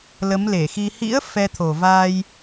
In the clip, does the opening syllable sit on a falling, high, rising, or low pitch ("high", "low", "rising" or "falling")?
rising